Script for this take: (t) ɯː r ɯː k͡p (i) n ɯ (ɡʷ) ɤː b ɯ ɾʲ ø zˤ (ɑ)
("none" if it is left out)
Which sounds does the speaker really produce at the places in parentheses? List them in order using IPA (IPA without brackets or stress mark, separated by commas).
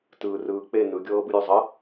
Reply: t, e, ɡʲ, ə